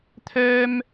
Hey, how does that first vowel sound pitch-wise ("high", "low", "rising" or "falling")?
high